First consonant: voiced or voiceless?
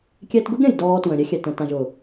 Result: voiceless